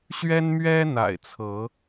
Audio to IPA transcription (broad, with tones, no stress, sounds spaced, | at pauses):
ɕ ɥ ɛ˦ n m ɥ ɛ˦ n̪ a̰˨˩ ɪ̯ t͡sʰ ɤ˨˦